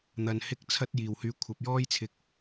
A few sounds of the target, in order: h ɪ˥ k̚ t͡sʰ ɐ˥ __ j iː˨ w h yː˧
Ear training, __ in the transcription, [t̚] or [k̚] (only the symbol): t̚